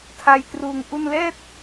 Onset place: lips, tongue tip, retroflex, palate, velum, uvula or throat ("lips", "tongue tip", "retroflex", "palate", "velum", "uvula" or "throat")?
tongue tip